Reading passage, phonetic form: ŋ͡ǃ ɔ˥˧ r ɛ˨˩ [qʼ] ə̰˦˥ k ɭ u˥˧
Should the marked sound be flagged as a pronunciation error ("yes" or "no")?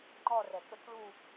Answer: yes